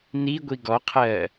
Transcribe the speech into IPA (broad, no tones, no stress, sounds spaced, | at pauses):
n i ɡʷ i ɡ ɔ qʰ ɜː